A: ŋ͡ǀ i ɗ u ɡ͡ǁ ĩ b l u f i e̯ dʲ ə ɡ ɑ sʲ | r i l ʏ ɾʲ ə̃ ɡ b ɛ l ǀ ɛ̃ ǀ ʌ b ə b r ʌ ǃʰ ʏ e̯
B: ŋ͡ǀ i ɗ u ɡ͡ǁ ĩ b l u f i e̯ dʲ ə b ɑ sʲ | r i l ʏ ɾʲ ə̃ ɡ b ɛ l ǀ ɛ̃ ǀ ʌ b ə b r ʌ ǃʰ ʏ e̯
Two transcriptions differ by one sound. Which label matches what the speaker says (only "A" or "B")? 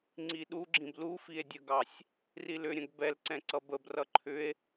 A